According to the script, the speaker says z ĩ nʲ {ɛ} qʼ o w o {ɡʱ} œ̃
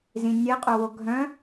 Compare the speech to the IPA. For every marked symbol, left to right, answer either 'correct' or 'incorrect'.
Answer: correct, correct

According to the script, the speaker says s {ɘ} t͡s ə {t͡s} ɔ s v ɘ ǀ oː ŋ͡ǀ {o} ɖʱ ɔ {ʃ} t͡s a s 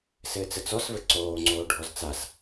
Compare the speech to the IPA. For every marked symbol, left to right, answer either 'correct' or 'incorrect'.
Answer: incorrect, correct, incorrect, incorrect

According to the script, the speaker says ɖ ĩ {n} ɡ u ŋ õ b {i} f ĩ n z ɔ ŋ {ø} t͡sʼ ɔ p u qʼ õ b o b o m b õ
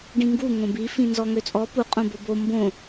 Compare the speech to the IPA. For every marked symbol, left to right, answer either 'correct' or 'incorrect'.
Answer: incorrect, correct, correct

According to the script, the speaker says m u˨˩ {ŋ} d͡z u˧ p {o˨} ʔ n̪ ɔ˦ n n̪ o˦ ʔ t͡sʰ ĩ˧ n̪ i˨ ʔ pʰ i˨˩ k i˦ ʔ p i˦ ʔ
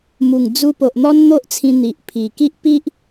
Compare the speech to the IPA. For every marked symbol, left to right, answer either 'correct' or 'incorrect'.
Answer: correct, correct

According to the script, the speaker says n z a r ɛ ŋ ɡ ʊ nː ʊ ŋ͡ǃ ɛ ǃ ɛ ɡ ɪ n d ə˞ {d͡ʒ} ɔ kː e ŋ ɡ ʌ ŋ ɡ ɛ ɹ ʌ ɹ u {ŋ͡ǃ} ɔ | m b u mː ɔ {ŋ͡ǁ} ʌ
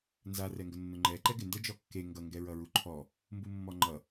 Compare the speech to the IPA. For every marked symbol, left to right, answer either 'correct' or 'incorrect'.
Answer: correct, incorrect, incorrect

